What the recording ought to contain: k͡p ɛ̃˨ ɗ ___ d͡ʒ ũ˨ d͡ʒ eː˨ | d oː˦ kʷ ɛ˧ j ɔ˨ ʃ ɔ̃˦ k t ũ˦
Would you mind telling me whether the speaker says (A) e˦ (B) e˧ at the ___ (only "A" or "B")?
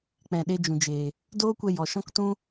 B